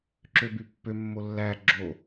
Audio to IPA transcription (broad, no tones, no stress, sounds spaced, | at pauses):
ǁ ø b y pː ø mː o lː æ ɡ͡ǁ o